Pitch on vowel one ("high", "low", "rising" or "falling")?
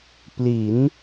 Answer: rising